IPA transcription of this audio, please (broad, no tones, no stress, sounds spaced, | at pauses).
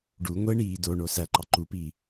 ɖ u ŋʷ e ɳ iː d o ɳ o s æ ǃ ɑ ǃ u p iː